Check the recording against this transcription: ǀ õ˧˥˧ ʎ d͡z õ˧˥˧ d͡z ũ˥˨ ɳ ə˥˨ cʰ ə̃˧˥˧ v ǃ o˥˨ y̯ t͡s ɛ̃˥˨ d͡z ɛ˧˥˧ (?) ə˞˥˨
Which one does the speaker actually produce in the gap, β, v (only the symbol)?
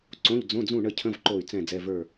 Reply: v